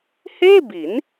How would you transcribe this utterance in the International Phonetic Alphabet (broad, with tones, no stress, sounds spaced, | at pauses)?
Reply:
h eː˥˩ b i˩˦ n